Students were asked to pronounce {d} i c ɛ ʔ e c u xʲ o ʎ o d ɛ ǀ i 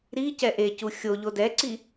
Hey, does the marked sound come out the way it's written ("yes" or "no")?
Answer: no